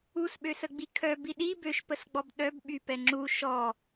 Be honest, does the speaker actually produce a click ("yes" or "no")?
yes